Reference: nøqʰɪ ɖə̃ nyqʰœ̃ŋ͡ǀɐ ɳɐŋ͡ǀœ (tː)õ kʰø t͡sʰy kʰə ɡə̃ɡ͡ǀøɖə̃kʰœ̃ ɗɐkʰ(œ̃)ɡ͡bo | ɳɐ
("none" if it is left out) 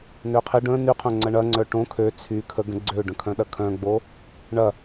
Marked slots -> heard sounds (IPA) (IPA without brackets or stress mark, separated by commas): ʈ, œ̃